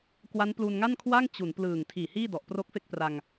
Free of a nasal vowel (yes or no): yes